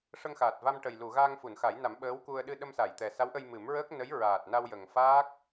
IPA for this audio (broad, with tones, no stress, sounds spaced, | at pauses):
ʂ ə˧ ŋ x aː˨˩ t̚ v a˧ m ʈ ə˨˩ j l u˨˩˨ ɣ aː˧ ŋ f u˨˩˨ n x a˨˩˦ j n a˨˩˦ m ɓ əː˧˥ w k u˧ ə̯ ɗ ɨ˧ ɗ ə˧ m s a˨˩˨ j t̪ ɛ˨˩ s a˧˥ w ʔ ə˧ j m ɨ˨˩˦ m ɹ əː˦˥ k̚ n ə˧˥ j ɹ aː˨˩ t̚ n a˧ w j ə˨˩ ŋ f aː˦˥ k̚